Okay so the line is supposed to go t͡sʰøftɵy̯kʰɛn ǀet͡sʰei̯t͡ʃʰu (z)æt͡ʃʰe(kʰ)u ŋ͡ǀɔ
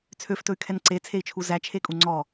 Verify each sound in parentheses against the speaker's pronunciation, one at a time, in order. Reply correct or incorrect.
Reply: correct, incorrect: kʼ

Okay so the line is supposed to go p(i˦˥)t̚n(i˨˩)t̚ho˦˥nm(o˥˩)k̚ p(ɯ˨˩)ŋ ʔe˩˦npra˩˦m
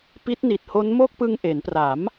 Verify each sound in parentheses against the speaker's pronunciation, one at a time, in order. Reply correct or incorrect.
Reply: correct, correct, correct, incorrect: ɯ˧

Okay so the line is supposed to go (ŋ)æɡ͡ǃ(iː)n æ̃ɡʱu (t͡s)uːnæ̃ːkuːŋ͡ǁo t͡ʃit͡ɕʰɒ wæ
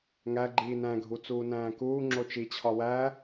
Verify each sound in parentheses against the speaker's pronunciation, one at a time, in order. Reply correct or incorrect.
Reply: correct, correct, correct

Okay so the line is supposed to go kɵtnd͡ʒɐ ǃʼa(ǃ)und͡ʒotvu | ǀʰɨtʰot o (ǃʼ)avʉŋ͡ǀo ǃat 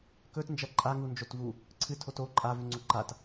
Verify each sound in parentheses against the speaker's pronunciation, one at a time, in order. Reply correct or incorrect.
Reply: incorrect: ŋ, correct

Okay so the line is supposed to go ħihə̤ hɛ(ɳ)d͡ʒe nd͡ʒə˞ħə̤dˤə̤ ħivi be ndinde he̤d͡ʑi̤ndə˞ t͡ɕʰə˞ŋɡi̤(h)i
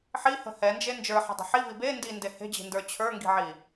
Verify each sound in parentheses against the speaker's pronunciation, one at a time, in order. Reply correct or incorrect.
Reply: incorrect: n, incorrect: ʕ

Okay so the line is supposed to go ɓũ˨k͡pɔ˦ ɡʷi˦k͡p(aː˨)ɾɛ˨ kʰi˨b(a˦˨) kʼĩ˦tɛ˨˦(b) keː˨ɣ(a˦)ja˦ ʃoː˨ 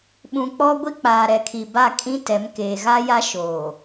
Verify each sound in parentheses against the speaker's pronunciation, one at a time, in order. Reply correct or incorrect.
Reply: correct, correct, incorrect: m, correct

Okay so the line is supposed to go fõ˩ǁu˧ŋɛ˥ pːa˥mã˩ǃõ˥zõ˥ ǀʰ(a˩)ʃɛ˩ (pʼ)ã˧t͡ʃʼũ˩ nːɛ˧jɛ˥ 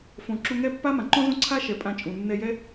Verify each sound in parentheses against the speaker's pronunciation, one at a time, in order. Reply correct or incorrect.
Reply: incorrect: a˥, correct

